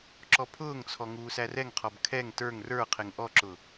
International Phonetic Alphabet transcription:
ǁ ɔ pʰ ʊː ŋ t͡sʰ ɔ ŋ uː s æ r ɛ ŋ qʰ ɔ b kʰ ɛ ŋ t ə˞ ŋ r ə˞ qʰ ɪ ŋ ʔ ɔ ǁ ʊ

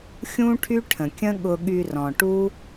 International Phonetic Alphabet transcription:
xʲ ũ˦ ʈʰ y˦ ʈʰ ə̃˨ kʲ ə̃˦ ɠ ʊ˧ ɠ y˧ r ɔ̃˨ ʈ u˦

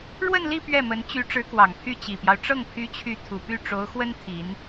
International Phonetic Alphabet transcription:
ɻ w ə˥˧ n l i˥˧ p ɥ ɛ˥˩ m ə˧˥ n t͡ɕ y˧˥ ʈ͡ʂ ɻ̩˧˥ k w ɑ˨˩ ŋ pʰ y˥˩ t͡ɕ i˨˩ p j ɑ˦ ʊ̯ ʈ͡ʂ ɤ˥˩ ŋ pʰ y˥ t͡ɕʰ y˥˩ t̪ʰ u˨˩ p y˥˩ ʈ͡ʂ o˧˥ ʊ̯ x w ə˥ n t̪ʰ i˧˥ n

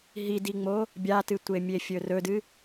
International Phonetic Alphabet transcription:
ɦ i d i ŋ͡m o | bʲ a t ɨ tʷ e mʲ e fʲ ɵ r ɵ d ɨ

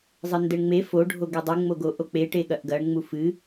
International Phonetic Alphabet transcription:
zˤ ɘ n d ɘ ɳ ŋ͡m e f o ɖʱ o ɡ e dˤ u ŋ͡m o ɡ o ʔ o k͡p e ʈ e ɠ ɐ ʔ ɡ ɐ ɳ ŋ͡m u f ɨ

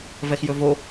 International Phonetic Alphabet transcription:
v ɛ x j ɵ v o

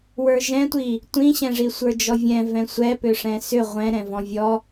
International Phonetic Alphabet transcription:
w ə˞ ʒ ɛ̃ tʷ i | tʷ ĩ ɕ ɛ̃ ʐ i sʷ ə˞ d͡ʒ ɔ vʲ ɛ̃ v ɛ̃ sʷ ɛ p ʏ ʂ ɛ̃ s ʏ ʁʷ ɛ̃ ɾ ɛ̃ v ɔ̃ vʲ ɔ

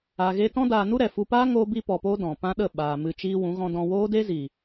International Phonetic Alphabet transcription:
a˧ ɣ e˦ t ɔ̃˦ d aː˧ n u˦ ɾ ɛ˨ f u˧ p aː˦ ŋ oː˦ b i˦ p ɔ˧ p oː˦ d ɔ̃˨ p ã˦ ɗ ə˦˨ ɓ aː˨ m ɨ˧ t͡ʃ iː˦ w ũ˨˦ ɣ ɔ̃˦ d ɔ̃˧ w oː˦ d e˦ z iː˨

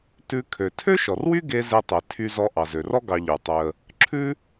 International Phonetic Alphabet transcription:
t ʉ˧ kʰ ø˩ tʰ ø˥ ʃ ɔ˩ r w y˥ ɡ e˧ z e˧ tˤ e˩ tʰ y˧ z ɔ˧ ʔ ɑ˩ z ø˩ r ɔ˥ ɡ ɑ˧ ʎ ʉ˩ tˤ ø˧ ə̯ | ǁʰ ʉ˥

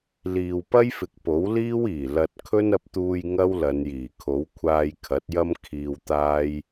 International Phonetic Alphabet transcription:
l iː˨ w p ɐ˥ j f ɪ˨ k̚ p o˨˥ w l iː˥ w iː˨˩ l ɐ˧ t̚ kʰ ɵ˥ n ɐ˧ p̚ t̪ uː˧ j ŋ ɐ˥ w l ɐ˨˧ n j iː˨˩ kʰ o˨˥ w kʷʰ aː˧ j kʰ ɐ˨˥ t̚ j ɐ˥ m kʰ iː˧ w t̪ aː˥ j

